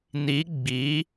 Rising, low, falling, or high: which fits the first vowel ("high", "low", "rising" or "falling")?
rising